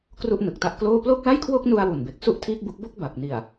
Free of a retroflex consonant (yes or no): yes